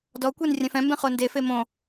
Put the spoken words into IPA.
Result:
d ɔ kʷ e n rʲ ɛ̃ f ɛ̃ m b ẽ χ o n d e f e m õ

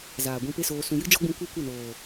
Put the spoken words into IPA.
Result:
z aː˨ ɡʷ ĩ˧ p e˦ s oː˧ s ũ˧ j ɨ˦ d͡ʒ ɔ˦ ɡ͡b ũ˧ kʷ e˦ kʷ ə˦˨ n oː˨

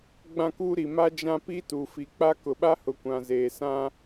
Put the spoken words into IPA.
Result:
ɡ͡b ã˦ k uː˦ ɾ i˨ m a˦ d͡ʒ ã˦ p i˦ t u˨ f i˨ k͡p a˦ k ʊ˨ ɓ a˦ h ʊ˨ kʷ ã˨ z eː˨ s ã˦

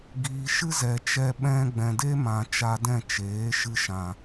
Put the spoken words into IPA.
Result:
ɡ iː˨ ʃ ɨ˦ z ɛ˨ t͡ʃ ɛ˧ ɓ ɛ̃˧ ɡ͡b ɛ̃˨ d e˦ m ã˨ t͡ʃ a˧ d ɛ̃˦˨ t͡ʃ eː˨˦ ʃ ɨ˧ ʃ ã˨

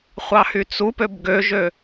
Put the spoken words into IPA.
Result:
χʷ ɑ h y t͡s u p ø b ɡ ø ʒ ø

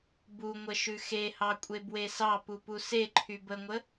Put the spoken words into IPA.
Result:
b u ŋʷ ə ʃ ʉ x e h ɑ kʷʼ e b w e s ɑ p u p u s e ǃʰ y b ə ŋʷ ə

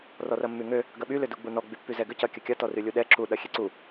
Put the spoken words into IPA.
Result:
r ɔ r ɐ mː y ŋ ø | ɡ ɐ ɓ y l ʏ d u ɡ͡b u n ɔ ɡ͡b y pː y z ɛ ɡ ʏ c ɐ kʲ ə kʲ ɐ t ɔ r y lʲ u ɗ ɛ ǁ u ɗ ɐ xʲ e ǀ u

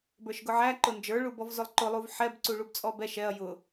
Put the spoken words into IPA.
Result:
b ə˞ ʃ ɡ ʊ ʕ æ ǃ ʊ n d͡ʒ ə˞ ɭ u b ɔ v z ʊ lˠ ǃ ʊ lˠ u v ħ ɛ b ǀ u ɭ u b t͡sʼ ɔ b ɛ ʃ ɛ ɐ̯ j ʊ

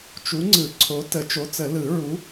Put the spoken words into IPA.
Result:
t͡ʃ u˨˦ ŋ͡ǀ ɯ˨˩˦ ǀʰ o˨˦ t ə˨˩˦ t͡ʃ o˨˦ t͡s ə˨˩˦ l ɯ˨˩˦ ɹ u˨˦

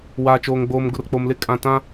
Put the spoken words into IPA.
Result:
w a˨ t͡ʃ oː˨ ŋ ɡ͡b oː˨ m ɡ ʊ˨ r k͡p o˨ m l ɪ˦ kʼ ã˨ t ã˦

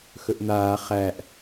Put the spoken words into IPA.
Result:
x ɵ ʔ n̪ aː χ æ ʔ

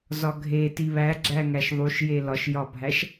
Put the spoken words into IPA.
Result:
z ɒ ɡʱ e t i β æ ɡ͡ǁ æ ŋ æ ʃ ðˤ u ʃ j e l ɒ ʃ j ɒ bʱ æ ʃ

